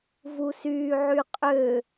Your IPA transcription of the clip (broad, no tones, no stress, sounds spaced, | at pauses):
v u s yː ʕ y qʼ ø